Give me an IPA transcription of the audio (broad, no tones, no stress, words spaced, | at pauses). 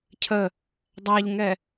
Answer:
cʰə | dˤæʎŋɛ